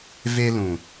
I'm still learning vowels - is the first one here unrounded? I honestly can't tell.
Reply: yes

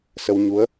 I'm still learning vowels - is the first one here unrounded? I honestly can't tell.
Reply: yes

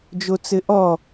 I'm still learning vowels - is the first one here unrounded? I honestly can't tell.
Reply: no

